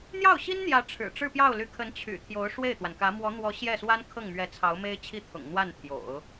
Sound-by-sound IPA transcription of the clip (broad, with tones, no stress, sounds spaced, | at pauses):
n̪ j ɑ˥˩ ʊ̯ ɕ i˥ n n̪ j ä˧˥ ʈ͡ʂʰ ɻ̩˨˩ ʈ͡ʂ ɻ̩˥˧ p j ɑ˥˩ ʊ̯ l y˧˥ kʰ ə˧˥ n t͡ɕʰ y̰˨˩ t̪ʰ j o˧˥ ʊ̯ ʂ w e˥˩ ɪ̯ t̪ w a˩ n k ä˧˥ m w ɔ˧˥ n̪ w ɔ˧˥ ɕ j ɛ˥˩ s w a˥ n kʰ ɤ˥˩ ŋ m ɥ ɛ˧˥ t͡sʰ ɑ˧˥ ʊ̯ m e˥ ɪ̯ t͡ɕʰ i˥ t̪ʰ ʊ̰˨˩ ŋ n̪ w a˥˩ n t̪ʰ j o̰˨˩˦ ʊ̯